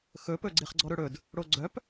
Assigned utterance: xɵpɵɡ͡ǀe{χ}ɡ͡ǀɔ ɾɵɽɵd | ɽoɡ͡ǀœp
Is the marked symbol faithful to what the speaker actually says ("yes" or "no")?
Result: yes